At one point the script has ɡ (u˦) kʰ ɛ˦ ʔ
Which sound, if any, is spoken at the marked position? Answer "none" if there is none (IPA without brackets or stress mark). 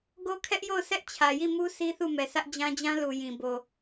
o˦